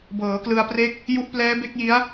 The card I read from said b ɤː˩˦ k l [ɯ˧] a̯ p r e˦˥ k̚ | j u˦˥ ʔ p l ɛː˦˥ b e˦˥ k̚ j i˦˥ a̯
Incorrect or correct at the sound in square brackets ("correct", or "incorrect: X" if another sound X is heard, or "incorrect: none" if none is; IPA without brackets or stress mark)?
correct